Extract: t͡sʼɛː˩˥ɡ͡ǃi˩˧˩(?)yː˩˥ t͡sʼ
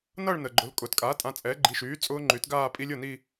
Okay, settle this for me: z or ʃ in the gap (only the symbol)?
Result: ʃ